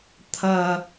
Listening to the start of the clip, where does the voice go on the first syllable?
high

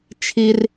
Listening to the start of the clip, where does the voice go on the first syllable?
low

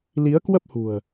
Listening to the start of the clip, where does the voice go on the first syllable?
rising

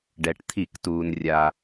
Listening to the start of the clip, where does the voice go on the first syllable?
low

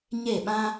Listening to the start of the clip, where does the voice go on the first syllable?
falling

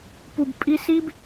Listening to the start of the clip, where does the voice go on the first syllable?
low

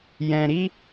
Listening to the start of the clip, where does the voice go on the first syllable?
low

